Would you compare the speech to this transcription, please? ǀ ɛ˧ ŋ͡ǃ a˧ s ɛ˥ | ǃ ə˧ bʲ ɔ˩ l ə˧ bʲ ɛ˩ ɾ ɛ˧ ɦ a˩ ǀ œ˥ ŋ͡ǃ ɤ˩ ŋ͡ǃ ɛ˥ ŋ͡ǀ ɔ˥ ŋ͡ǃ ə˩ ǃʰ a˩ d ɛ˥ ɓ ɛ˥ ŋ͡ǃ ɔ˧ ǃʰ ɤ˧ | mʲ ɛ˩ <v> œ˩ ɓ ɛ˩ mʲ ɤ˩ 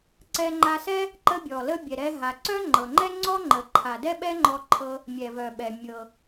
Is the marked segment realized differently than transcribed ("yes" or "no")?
no